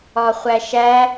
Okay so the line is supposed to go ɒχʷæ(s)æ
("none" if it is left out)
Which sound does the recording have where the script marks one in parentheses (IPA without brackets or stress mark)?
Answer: ʃ